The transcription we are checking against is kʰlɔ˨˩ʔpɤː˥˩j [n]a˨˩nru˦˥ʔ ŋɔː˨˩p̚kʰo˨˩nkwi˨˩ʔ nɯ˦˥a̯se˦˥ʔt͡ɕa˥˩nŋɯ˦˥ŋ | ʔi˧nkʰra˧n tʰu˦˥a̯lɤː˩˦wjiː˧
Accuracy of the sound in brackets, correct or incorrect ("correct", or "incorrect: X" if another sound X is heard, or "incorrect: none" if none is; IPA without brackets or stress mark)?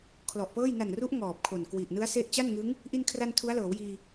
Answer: correct